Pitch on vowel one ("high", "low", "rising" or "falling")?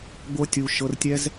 high